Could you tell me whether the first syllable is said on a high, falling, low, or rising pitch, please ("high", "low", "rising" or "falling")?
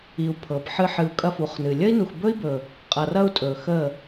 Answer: low